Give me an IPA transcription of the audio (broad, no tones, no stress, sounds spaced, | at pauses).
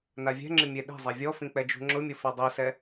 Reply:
n a vʲ ɛ̤ ŋ͡ǁ ɪ mʲ e ɗ i̤ zˤ ɛ vʲ ɔ f ĩ k͡p ɛ d͡ʒ ṳ ŋ͡ǁ ʊ mʲ ʊ f ɛ dˤ i s ɛ